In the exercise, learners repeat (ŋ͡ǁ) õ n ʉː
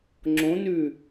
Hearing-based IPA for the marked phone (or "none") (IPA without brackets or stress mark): ŋ͡ǁ